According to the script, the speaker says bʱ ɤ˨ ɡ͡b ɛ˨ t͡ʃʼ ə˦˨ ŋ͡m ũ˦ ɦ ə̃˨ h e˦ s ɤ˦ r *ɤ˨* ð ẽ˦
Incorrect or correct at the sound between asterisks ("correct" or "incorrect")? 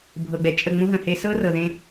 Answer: correct